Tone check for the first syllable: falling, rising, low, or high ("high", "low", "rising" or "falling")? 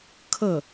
falling